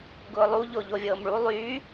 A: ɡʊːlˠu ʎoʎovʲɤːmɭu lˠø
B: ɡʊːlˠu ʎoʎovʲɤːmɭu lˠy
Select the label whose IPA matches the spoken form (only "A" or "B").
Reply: B